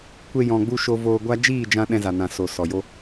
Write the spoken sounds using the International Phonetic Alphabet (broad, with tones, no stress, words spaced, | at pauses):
kʷe˧jɔ̃˨ɡ͡bu˧ ʃo˧voː˧ɡʷa˦ d͡ʒiː˦˨d͡ʒã˧ ɗɛ̃˧za˨nã˨ so˨sɔ˨ jo˦